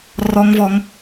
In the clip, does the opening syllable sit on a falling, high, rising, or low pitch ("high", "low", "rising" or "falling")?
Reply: high